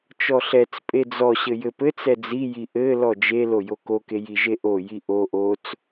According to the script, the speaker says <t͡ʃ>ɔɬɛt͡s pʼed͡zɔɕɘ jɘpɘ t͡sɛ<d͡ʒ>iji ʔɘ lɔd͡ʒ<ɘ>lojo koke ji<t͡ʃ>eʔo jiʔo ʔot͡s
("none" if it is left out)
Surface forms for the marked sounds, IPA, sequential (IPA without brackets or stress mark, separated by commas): t͡ʃ, d͡z, e, ʒ